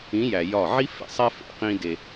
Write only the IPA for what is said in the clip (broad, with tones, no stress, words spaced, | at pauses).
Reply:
ĩ˨˦jæ˨ jɒ˦˨ ʕi˦fḛ˨sˤæ˦ fḛ˨ qĩ˦ de˦